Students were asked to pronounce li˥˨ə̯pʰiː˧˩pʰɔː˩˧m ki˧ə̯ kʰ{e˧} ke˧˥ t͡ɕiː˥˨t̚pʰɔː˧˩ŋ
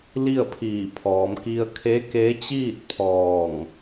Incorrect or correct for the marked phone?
incorrect: e˧˥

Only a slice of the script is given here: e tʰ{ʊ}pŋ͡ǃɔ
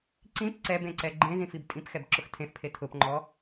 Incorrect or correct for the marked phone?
correct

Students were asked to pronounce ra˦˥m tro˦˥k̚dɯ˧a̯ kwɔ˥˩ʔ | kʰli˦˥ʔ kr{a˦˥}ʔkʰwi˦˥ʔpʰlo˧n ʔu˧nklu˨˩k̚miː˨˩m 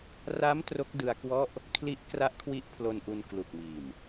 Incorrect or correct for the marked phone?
correct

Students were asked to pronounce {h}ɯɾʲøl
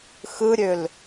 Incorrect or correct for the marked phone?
incorrect: x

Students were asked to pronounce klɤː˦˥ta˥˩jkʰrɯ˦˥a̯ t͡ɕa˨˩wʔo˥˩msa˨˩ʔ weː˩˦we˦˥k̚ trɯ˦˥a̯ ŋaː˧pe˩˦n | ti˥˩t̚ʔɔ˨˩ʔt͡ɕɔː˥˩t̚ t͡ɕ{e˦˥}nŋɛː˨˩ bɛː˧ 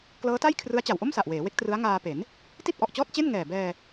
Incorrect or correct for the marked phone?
incorrect: e˥˩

